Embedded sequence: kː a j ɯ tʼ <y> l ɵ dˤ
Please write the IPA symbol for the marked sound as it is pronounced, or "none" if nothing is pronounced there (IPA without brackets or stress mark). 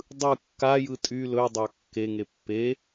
y